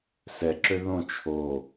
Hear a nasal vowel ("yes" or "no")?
yes